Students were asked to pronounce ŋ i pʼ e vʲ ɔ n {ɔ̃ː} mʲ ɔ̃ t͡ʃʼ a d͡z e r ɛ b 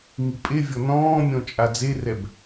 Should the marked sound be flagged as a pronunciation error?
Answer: no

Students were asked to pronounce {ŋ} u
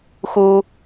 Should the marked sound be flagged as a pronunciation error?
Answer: yes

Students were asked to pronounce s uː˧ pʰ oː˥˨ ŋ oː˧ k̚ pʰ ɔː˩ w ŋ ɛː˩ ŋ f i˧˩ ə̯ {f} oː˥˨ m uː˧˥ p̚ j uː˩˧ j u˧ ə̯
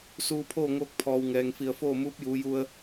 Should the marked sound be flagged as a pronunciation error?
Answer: no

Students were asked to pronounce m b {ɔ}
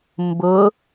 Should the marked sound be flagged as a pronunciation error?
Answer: yes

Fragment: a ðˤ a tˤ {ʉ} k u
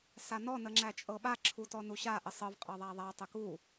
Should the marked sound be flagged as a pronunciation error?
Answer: yes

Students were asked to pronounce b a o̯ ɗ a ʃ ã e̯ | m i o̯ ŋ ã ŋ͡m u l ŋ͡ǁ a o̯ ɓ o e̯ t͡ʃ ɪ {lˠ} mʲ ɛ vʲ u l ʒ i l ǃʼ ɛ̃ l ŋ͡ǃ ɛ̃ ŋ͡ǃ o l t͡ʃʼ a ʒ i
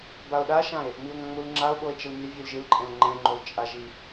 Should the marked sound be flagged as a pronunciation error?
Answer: yes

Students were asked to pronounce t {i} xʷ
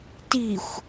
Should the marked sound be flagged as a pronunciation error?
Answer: no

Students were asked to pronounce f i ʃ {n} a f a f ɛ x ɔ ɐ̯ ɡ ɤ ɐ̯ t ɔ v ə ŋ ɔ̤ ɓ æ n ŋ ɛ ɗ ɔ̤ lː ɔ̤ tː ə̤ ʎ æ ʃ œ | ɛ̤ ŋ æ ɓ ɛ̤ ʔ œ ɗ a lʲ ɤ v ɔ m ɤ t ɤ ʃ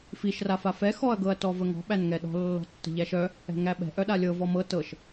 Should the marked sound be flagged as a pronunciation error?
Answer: yes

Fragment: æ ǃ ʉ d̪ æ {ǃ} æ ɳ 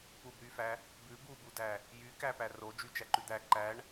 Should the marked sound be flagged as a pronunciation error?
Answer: no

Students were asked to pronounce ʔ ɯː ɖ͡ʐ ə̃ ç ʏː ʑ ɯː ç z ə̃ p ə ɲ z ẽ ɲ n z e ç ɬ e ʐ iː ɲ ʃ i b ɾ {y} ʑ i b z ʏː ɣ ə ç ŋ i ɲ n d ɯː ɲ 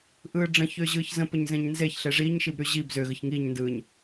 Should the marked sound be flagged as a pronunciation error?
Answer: no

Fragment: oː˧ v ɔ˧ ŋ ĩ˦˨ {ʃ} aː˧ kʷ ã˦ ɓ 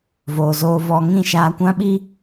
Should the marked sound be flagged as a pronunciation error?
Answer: no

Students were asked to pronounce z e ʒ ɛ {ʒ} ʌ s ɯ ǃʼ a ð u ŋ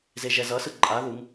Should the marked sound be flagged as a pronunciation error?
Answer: yes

